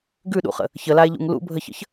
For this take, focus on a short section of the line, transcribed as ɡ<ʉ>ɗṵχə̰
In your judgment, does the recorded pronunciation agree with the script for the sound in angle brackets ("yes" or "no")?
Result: yes